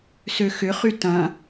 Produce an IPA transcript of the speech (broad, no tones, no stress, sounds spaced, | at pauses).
s ø x ʏ χ y t ɐ̃